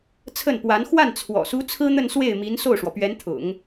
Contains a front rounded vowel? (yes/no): no